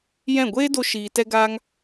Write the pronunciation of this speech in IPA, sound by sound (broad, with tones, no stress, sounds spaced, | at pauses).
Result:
j ɛ̃˦˨ ɡʷ eː˦ d o˧ ʃ iː˧ t ɛ˦ ɡ aː˦ ŋ